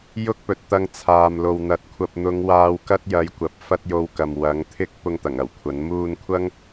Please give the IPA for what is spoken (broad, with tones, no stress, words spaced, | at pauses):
jʊ˥k̚pɵ˨t̚t̪ɐ˧ŋ t͡sʰaː˨mlo˨wn̪ɐ˨˥t̚ kʷʰɐ˨p̚n̪ʊ˨˧ŋ waː˧wkɐ˥t̚jɐ˨˥jkʷɐ˨p̚ fɐ˥t̚jo˧wkɐ˨m wɐ˨˥ŋ t̪ʰɪ˥k̚ pʊ˧ŋt̪ɐ˨˩ŋ ɐ˨˩wkʷʰɐ˨˥n muː˧nkʷʰɐ˥ŋ